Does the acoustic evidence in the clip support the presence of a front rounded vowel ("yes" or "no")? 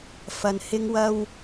no